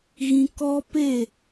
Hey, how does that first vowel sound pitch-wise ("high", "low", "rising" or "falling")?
high